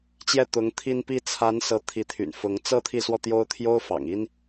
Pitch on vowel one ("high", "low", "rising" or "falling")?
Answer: falling